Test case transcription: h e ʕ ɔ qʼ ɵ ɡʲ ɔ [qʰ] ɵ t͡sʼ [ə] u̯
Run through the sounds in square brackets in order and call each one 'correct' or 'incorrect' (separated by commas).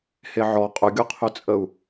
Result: correct, correct